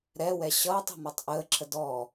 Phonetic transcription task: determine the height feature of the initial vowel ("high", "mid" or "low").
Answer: mid